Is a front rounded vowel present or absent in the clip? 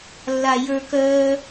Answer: present